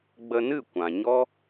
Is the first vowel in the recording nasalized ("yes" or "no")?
no